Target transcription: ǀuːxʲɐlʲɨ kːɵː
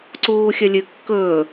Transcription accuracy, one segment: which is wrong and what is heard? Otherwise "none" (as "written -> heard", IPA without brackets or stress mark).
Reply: none